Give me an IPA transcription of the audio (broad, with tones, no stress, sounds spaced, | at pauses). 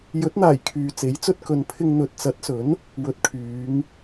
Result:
j ɵ˨˥ t̚ n̪ aː˨˩ j kʰ yː˨ t͡s e˨˥ j t͡s ɵ˥ t̚ k ɵ˨ n pʰ ɪ˧ ŋ n̪ ɵ˨ t̚ t͡s ɐ˨˥ t̚ s ɵ˨˥ n | w ɵ˨˥ t̚ kʰ yː˨˧ ŋ